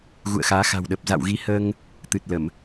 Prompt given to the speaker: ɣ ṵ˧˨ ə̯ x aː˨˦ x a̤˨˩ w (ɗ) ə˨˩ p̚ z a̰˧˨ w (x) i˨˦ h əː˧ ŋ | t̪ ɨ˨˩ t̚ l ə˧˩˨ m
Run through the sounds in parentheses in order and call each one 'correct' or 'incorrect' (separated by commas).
correct, incorrect